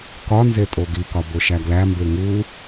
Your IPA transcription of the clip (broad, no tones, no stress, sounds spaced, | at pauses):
k ɒ n z e tʼ o ɡ i k ɒ b o ʃ æ ɡ l æ m b e ŋ u